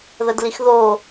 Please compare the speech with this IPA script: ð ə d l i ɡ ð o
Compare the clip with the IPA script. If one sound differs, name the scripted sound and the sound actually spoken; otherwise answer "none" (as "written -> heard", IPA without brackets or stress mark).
ɡ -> x